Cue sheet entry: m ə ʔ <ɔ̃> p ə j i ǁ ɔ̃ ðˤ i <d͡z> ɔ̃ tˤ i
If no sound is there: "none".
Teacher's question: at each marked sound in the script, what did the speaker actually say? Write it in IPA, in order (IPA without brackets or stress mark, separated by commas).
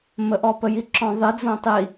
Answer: ɔ, d͡z